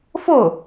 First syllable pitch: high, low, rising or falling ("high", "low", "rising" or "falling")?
falling